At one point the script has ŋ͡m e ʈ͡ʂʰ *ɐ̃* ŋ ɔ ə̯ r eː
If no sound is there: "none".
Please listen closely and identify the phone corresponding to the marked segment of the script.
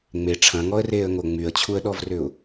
ɐ̃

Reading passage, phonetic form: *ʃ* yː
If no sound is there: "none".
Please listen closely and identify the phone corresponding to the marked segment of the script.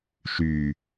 ʃ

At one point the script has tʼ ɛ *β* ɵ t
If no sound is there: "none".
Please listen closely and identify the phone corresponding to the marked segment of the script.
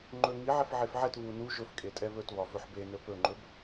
β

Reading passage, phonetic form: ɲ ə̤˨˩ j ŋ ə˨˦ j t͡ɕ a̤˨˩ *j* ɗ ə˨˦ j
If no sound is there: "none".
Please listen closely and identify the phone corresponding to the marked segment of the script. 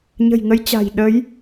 j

